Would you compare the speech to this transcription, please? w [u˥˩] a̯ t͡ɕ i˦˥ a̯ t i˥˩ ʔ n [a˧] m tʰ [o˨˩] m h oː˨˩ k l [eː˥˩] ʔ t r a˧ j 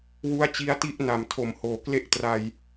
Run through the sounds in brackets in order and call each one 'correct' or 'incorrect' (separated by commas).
incorrect, incorrect, correct, incorrect